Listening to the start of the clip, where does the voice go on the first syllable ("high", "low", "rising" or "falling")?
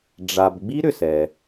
low